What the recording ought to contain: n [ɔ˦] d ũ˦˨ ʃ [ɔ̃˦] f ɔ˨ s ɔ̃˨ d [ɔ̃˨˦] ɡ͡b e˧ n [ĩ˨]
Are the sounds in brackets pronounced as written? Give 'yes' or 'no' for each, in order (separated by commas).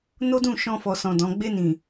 no, no, yes, yes